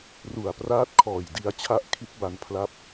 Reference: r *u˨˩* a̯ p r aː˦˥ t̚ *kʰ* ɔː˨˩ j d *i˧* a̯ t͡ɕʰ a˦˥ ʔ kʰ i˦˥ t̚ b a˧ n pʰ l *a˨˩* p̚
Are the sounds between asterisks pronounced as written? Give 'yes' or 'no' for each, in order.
yes, yes, yes, no

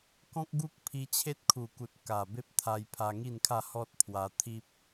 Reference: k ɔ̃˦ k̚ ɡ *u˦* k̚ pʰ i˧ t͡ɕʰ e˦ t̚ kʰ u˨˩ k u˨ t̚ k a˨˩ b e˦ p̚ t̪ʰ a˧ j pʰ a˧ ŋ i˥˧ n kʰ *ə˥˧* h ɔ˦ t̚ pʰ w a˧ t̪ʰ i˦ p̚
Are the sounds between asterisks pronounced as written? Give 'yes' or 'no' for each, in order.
yes, no

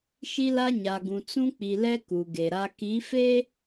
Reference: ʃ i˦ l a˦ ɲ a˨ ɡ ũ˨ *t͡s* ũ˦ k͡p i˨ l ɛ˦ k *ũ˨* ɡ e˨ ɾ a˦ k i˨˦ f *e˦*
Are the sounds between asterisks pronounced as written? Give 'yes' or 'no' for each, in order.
yes, no, yes

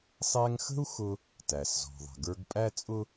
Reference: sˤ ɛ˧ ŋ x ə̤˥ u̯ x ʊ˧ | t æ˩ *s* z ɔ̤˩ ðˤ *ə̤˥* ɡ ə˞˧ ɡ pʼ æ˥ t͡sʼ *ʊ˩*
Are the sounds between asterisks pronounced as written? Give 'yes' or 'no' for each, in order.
yes, no, no

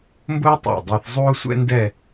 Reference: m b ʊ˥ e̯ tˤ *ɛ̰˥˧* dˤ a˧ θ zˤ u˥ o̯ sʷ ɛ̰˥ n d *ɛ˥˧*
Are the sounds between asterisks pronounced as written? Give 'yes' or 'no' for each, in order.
no, yes

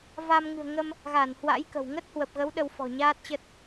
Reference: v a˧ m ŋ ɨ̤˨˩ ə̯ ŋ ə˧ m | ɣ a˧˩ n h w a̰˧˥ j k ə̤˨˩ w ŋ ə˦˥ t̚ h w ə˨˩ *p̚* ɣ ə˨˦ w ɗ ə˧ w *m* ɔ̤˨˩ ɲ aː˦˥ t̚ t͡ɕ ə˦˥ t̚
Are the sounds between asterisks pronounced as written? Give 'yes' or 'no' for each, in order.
yes, no

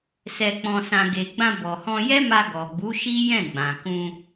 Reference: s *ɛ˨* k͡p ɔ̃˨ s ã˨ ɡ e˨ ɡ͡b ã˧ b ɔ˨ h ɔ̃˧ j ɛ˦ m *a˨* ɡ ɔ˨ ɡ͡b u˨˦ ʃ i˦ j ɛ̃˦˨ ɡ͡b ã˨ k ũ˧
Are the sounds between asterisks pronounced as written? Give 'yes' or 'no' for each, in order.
yes, no

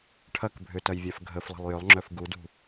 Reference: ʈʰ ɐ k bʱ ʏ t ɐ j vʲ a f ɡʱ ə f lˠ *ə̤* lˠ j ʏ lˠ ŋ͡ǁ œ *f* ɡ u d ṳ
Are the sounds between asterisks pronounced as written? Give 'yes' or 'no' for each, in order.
yes, yes

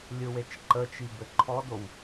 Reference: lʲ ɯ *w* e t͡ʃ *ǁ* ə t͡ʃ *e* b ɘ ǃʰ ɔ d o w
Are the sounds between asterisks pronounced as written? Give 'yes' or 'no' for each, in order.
yes, no, no

